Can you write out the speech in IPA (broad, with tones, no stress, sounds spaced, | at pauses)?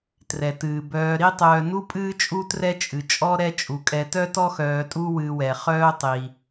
t r ɛ˩ t ɨː˩ b œː˨ ɾ i˥ tˤ œː˨ n u˥ pʼ ɨː˦ t͡ʃʼ u˦ t r ɛ˦ t͡ʃʼ ɨ˩ t͡ʃʼ ɔ˦ ɾ ɛ˦ t͡ʃʼ u˩ kʼ ɛ˨ t œ˥ t ɔ˥ x œː˨ tʼ u˦ w ɨː˨ w ɛ˩ χ œː˦ tˤ i˩